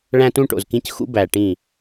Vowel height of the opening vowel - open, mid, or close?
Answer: open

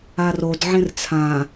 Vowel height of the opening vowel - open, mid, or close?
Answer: open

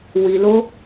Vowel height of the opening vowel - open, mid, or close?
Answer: close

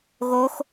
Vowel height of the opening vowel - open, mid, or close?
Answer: mid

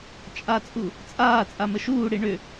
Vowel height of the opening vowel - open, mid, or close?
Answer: open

